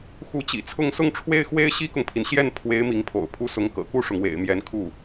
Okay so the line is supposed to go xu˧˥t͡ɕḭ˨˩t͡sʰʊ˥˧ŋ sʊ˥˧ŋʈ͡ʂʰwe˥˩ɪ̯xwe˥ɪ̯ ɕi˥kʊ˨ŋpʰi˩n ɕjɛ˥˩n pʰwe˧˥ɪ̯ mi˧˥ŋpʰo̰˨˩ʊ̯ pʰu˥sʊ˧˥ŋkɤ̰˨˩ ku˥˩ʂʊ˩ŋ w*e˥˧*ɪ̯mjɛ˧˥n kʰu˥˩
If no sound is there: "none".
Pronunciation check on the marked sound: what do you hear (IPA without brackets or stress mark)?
ḛ˨˩